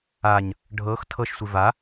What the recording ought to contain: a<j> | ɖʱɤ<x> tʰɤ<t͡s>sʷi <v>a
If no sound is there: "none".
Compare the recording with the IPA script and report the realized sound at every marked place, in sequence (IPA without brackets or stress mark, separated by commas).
ɲ, x, ʃ, v